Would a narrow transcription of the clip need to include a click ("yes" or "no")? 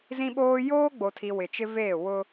no